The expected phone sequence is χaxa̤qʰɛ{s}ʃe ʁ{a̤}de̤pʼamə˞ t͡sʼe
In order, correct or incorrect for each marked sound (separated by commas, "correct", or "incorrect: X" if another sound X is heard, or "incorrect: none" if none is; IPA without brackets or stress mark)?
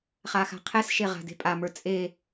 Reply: correct, correct